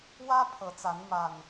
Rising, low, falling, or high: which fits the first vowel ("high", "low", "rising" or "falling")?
high